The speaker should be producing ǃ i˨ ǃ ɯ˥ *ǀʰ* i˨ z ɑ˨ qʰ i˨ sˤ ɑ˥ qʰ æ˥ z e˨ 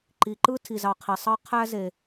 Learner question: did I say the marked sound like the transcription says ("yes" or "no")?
no